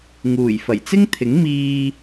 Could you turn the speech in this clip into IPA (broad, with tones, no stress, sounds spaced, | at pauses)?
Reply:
ŋ uː˨˩ j f ɐ˨˩ j t͡s ɪ˥ ŋ t̪ʰ ɪ˨˥ ŋ m iː˧